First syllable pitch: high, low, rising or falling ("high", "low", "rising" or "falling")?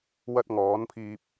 high